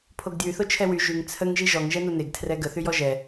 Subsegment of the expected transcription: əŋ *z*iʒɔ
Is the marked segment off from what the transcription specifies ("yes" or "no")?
yes